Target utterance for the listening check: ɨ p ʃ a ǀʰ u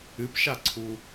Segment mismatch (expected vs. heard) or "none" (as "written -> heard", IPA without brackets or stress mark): none